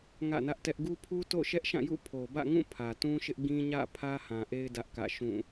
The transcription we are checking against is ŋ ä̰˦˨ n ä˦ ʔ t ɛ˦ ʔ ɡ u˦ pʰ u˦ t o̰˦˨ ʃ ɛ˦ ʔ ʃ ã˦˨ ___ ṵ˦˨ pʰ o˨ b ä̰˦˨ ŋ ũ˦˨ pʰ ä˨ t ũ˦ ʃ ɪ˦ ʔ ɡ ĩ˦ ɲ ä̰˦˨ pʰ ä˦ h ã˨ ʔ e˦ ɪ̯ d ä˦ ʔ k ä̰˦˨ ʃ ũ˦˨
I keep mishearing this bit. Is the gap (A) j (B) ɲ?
A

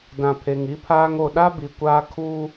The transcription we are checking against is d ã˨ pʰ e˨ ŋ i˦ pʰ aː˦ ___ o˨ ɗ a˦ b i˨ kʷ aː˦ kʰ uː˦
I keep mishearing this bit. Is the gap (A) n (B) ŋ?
B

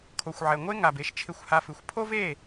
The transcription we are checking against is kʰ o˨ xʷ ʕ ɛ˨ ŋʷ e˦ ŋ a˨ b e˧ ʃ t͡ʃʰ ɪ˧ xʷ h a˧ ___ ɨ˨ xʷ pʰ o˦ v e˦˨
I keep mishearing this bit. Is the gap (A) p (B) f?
B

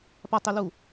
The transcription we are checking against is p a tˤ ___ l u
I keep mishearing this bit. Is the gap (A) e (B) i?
A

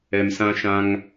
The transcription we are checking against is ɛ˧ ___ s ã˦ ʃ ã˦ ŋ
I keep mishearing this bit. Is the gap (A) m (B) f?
A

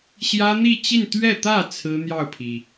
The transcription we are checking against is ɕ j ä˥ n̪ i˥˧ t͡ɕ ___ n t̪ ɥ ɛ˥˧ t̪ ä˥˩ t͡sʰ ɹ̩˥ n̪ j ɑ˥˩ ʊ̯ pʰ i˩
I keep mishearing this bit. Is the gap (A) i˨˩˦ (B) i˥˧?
B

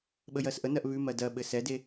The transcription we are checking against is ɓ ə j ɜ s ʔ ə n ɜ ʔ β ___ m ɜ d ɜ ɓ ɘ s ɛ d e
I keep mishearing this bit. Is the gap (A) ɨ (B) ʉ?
B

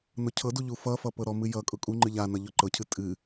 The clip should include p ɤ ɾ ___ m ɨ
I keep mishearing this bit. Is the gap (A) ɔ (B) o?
A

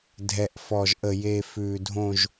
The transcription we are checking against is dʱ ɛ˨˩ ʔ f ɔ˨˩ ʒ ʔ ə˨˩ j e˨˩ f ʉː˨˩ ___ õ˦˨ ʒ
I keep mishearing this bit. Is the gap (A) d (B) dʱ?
B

